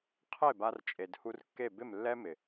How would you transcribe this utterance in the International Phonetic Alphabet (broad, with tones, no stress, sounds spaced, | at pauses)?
qʰ e˦˨ b a˧ r t͡ʃʼ e˨ d h u˧ r kː e˦˨ b ɪ˦˨ m lː ɛ˦ m ɪ˨